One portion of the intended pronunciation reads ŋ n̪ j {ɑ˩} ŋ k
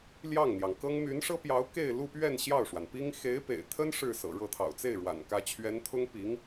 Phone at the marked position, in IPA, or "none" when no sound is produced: ɑ˩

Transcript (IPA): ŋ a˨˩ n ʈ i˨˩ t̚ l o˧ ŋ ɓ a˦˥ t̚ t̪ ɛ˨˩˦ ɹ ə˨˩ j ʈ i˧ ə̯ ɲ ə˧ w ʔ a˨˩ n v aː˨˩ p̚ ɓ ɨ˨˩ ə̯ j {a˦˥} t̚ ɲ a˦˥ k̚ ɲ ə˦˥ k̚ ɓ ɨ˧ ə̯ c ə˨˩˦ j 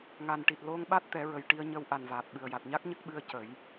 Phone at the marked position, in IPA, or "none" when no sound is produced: a˨˩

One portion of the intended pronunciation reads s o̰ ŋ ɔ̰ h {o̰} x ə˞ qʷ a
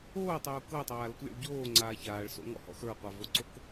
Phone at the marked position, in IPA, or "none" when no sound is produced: ɔ̰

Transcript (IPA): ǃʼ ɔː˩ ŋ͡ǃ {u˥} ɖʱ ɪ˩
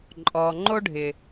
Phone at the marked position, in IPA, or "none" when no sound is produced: o˥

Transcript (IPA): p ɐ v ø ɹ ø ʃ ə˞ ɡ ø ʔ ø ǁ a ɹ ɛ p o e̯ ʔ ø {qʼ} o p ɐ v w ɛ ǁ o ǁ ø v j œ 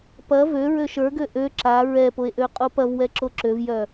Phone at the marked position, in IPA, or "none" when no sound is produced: qʼ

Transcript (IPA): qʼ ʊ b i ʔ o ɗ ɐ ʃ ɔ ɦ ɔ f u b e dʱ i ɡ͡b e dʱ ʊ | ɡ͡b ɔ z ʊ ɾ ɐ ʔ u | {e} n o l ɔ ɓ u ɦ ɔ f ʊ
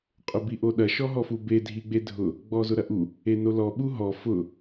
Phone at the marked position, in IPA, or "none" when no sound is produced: e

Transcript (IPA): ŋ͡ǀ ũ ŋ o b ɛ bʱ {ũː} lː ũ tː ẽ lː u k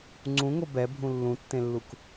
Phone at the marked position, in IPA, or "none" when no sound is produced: ũ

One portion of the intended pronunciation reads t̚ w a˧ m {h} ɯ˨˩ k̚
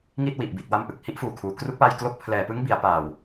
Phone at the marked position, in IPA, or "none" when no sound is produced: ʔ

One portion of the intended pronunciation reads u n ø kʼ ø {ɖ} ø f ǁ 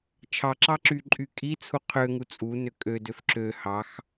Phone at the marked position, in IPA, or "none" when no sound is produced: d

